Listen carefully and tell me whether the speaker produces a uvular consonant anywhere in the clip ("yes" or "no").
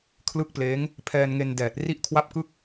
no